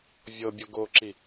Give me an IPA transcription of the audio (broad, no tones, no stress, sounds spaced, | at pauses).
vʲ ɤ bʲ o ɡ o ǁ i